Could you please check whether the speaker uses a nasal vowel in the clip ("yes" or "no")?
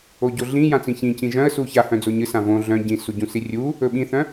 yes